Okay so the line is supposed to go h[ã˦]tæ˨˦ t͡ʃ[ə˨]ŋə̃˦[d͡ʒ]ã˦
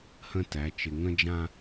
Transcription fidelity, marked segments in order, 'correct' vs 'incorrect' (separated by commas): incorrect, incorrect, correct